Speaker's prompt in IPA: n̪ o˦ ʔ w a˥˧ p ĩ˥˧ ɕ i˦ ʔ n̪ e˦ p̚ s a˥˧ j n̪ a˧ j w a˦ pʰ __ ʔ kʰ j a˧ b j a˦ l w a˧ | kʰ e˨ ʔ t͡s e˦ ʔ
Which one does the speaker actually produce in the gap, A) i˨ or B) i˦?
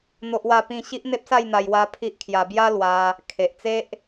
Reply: B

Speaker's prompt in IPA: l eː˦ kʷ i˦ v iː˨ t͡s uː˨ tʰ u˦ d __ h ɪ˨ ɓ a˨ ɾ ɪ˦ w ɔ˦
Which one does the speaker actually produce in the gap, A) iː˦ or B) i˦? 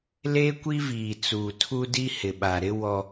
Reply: B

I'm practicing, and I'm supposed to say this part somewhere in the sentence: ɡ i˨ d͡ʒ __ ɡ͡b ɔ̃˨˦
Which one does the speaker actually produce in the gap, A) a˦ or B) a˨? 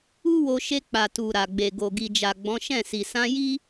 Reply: B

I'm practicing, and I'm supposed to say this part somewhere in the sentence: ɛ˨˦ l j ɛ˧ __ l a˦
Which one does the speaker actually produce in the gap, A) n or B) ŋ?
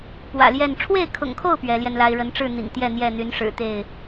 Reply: A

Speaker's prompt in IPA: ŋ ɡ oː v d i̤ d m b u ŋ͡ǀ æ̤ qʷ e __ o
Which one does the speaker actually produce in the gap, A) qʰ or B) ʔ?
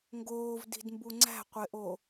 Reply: B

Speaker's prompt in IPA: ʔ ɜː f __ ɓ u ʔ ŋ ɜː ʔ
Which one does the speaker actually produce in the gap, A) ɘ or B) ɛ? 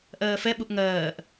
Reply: B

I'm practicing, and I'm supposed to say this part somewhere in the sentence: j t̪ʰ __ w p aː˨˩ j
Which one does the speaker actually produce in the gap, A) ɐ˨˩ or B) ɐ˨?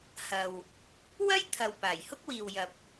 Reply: B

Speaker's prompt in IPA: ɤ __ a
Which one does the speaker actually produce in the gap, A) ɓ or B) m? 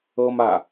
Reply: B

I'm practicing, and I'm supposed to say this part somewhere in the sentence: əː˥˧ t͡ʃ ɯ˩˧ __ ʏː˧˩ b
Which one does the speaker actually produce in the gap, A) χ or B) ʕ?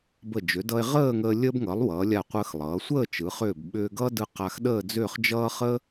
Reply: A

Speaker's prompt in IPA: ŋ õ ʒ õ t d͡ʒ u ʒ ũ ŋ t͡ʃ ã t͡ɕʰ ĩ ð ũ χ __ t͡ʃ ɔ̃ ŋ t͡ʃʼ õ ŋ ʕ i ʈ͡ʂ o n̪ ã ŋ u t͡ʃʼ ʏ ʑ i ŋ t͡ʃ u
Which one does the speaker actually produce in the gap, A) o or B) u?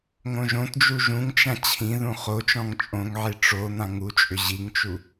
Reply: A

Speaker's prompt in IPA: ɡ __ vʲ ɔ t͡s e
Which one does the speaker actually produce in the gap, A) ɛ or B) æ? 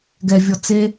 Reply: A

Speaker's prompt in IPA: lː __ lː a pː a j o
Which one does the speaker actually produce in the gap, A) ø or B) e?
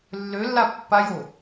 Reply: A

